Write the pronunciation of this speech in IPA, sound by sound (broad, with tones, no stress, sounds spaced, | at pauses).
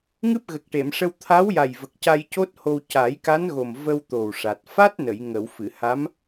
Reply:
ŋ ɨ˦˥ p̚ ɣ ə˨˩ k̚ ʈ e˨˩˨ m ʂ ə˧ w t̪ʰ a˧˥ w j a˨˩ j v ə˨˩ k̚ c a˧ j c o˦˥ t̚ h o˧ w c a˨˩˦ j k a˧˥ n ɣ o˨˩ m v ə˧ w t̪ o˨˩ w ʂ a˨˩ t̚ f a˦˥ t̚ n ə˨˩˨ j ŋ ə˨˩˨ w f ɨ˨˩˨ h a˧˥ m